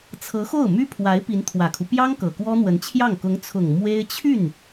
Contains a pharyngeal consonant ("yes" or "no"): no